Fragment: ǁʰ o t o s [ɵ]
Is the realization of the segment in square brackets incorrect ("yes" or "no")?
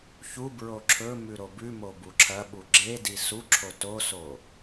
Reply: yes